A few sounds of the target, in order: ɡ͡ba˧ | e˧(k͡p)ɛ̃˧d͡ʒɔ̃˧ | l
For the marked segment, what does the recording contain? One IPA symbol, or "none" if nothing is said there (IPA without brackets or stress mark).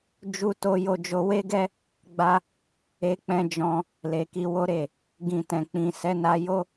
k͡p